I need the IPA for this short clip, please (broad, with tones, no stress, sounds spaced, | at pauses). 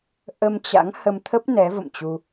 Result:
ʔ ə˧ m t͡ɕ a̰˧˥ ŋ h ə˧ m t̪ʰ ə˦˥ p̚ n ɛ˨˦ v ə̰˧˨ m t͡ɕ u˧